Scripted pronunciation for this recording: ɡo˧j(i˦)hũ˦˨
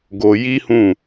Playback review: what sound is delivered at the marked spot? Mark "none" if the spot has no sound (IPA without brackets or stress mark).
i˦